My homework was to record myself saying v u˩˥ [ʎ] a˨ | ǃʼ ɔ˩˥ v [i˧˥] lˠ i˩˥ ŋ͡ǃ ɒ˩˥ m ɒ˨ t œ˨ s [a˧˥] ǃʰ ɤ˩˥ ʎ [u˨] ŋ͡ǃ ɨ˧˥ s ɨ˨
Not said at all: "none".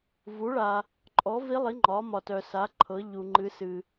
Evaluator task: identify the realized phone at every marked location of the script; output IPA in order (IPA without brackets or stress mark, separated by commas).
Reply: ɭ, i˧˥, a˩˥, u˨